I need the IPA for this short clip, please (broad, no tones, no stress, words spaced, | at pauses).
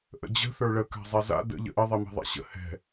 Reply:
ʔə̰d͡ʑə̤ θə˞ɭə ka̤zˤɛza̰ də̰ ʎə̰ʔə ðˤimɛ̤ðˤa̰ɕə̰ hɛ̤